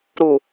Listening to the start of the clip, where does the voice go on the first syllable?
low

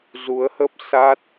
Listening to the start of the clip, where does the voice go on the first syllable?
rising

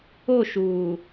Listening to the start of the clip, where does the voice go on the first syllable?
falling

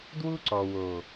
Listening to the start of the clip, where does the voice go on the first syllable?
high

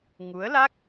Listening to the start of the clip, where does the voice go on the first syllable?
rising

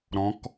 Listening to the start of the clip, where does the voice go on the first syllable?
rising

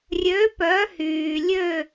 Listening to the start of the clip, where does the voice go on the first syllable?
rising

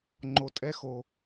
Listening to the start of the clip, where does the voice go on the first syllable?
low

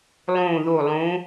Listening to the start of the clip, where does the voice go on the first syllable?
falling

